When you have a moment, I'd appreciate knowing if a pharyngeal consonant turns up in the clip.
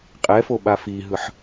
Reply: yes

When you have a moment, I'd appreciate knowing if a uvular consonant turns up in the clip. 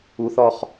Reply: yes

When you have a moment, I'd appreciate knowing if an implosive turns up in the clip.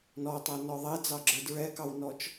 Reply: no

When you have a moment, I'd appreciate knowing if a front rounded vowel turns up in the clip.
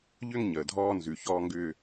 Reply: yes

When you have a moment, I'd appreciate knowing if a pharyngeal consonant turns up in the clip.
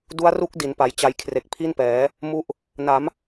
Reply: no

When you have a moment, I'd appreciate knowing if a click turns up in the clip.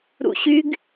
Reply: no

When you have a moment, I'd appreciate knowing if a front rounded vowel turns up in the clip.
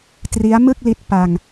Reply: no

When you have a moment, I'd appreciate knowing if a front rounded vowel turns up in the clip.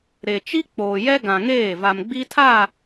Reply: no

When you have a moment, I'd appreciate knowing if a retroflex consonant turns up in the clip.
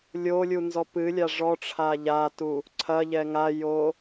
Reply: yes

